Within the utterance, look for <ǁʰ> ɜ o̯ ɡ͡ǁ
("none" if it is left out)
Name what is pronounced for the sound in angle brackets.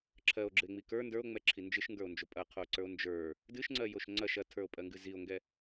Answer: ǁʰ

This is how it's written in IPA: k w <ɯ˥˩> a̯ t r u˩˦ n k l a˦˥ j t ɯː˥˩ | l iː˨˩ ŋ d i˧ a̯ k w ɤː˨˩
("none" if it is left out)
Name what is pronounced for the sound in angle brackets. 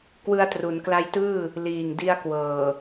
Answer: ɯ˧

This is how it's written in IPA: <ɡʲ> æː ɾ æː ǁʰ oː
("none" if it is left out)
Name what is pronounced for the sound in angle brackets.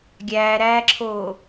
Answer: ɡʲ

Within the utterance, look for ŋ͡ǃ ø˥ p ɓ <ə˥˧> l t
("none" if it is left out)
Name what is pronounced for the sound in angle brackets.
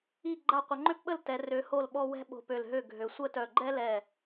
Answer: ə˥˧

